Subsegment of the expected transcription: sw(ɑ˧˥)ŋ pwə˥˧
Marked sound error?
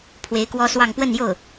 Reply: yes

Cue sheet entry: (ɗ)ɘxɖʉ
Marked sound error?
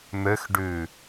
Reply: yes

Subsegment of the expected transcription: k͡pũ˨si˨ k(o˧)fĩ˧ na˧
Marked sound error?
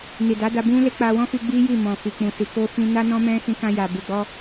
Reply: no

